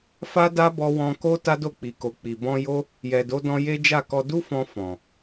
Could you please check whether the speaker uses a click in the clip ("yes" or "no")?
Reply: no